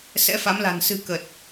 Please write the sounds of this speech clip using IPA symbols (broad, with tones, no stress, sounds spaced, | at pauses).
s ɛ̰˧˥ f a˨˦ m l a̤˨˩ n s ɨ̤˨˩ k ə˨˩ t̚